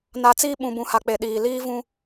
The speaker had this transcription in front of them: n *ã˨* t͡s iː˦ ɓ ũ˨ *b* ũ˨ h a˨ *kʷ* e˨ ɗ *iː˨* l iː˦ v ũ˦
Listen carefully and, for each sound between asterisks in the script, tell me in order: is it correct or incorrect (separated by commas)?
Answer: incorrect, correct, incorrect, correct